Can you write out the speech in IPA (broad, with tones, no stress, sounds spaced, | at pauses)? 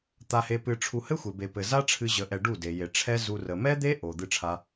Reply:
t̪ a˧ h e˧ p ɨ˧ ʈ͡ʂʰ u˧ h ɘ˦ xʷ e˨ b e˨ p ɘ˨ z a˦ ʈ͡ʂʰ ɨ˧ ʑ ə˧ ʔ ɛ˧ ɖ u˦˨ d e˨ j e˨ ʈ͡ʂʰ ɛ˦ z u˧ r ə˨ m ɛ˦ d̪ e˦ ʔ o˨ d̪ ɨ˧ ʈ͡ʂʰ a˧